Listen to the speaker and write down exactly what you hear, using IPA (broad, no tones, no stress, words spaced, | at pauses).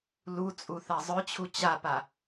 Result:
lut͡sʼu θazˤœt͡ɕʰu t͡ɕapa